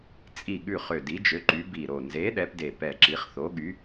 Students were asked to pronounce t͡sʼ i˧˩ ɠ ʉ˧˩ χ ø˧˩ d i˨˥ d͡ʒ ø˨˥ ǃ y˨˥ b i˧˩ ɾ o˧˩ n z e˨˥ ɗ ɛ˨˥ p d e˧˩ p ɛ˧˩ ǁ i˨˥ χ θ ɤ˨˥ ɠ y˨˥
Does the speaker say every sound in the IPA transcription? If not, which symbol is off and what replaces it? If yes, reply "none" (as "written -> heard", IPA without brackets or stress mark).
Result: ɤ˨˥ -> o˨˥